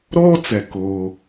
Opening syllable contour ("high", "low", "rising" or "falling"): high